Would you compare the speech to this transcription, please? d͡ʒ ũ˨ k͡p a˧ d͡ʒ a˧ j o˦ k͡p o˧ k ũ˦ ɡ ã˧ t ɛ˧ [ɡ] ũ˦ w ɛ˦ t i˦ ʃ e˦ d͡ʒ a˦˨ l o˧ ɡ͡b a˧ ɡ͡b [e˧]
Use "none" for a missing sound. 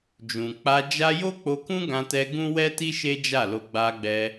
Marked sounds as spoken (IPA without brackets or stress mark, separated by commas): ɡ, ɛ˧